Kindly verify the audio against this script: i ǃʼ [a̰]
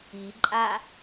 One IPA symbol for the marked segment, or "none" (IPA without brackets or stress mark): a